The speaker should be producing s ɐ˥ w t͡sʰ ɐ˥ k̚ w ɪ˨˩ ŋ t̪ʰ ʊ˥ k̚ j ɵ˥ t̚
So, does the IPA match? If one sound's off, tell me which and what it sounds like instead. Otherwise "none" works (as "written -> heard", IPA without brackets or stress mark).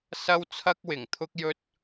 none